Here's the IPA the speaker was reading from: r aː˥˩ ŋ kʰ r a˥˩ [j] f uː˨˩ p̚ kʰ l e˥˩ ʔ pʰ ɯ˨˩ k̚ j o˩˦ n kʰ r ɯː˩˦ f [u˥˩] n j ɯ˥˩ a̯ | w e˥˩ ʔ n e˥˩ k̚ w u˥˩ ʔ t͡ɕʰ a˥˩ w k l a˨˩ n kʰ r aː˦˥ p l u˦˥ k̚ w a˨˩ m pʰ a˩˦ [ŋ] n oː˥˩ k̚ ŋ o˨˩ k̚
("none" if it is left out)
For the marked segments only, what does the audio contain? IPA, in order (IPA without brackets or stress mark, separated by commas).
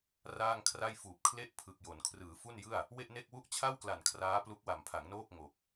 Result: j, u˥˩, ŋ